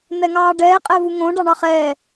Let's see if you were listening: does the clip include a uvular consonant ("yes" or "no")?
yes